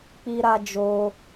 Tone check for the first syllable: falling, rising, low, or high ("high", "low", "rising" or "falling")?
high